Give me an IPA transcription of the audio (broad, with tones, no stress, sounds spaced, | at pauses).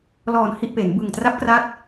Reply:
l ɔː˨˩ n h i˥˩ ʔ p e˩˦ n b ɯ˨˩ ŋ t r a˦˥ p̚ k r a˦˥ t̚